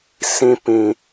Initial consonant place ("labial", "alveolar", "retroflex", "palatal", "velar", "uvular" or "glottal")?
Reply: alveolar